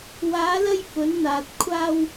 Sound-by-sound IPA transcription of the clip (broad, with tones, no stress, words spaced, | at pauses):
waː˨˧lɐ˧j fɵ˨˥nn̪aː˨t̚ kʷʰaː˧w